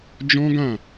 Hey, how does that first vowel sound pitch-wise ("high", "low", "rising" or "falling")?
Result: high